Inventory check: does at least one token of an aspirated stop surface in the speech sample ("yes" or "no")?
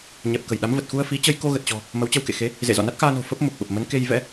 no